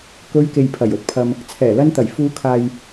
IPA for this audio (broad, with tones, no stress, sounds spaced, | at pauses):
k ɵ˧ ɥ k e˨ j pʰ ɐ˨˩ j ɵ˨ t̚ pʰ ɐ˨ m | t͡sʰ ɛː˨˩ l ɐ˧ n t̪ ɐ˨˩ j f uː˨˧ kʰ aː˨ j